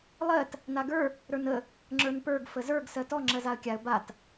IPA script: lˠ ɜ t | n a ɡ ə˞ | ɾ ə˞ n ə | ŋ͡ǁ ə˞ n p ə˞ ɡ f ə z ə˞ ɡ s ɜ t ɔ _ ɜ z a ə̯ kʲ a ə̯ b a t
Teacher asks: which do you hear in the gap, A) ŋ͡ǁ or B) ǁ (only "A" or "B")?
A